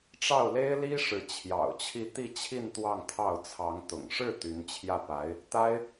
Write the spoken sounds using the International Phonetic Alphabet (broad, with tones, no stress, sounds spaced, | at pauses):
ʈ͡ʂ ɑ˥˩ ʊ̯ l e˥ ɪ̯ l i˥ ʂ ɻ̩˧˥ t͡ɕʰ j ɑ̰˨˩ ʊ̯ t͡ɕʰ i˥˧ t̪ i˥˧ t͡ɕʰ i˥˧ n t̪ w ɑ˥˧ ŋ t̪ʰ ɑ˥˩ ʊ̯ t͡sʰ ɑ˧˥ ŋ t̪ ʊ̰˨˩ ŋ ʂ ɻ̩˥˩ t̪ y˧˥ n t͡ɕʰ j ä˥˩ p a˧˥ ɪ̯ | t̪ a˥ ɪ̯